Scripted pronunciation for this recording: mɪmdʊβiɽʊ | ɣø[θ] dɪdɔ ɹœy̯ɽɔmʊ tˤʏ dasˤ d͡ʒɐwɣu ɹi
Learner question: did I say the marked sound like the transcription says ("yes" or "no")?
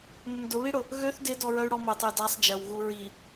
yes